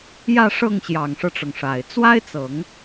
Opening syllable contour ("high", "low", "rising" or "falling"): falling